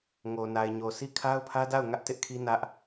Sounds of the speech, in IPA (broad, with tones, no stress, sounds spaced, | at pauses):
ŋ o˨ n a˨ ɪ̯ ɲ o˨ sʰ i˦ kʰ a˦ ʊ̯ pʰ ä˦ d a˦˨ ʊ̯ ŋ ä˦ ʔ t ɪ˦ ʔ kʰ i˦ n ä˦ ʔ